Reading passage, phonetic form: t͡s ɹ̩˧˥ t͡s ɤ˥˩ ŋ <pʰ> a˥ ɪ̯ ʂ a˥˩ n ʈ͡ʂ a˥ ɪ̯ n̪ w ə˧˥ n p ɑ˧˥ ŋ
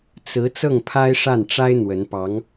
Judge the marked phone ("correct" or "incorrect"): correct